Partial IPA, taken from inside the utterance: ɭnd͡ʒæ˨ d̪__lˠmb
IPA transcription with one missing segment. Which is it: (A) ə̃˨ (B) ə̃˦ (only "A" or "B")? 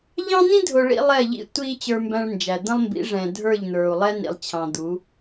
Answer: B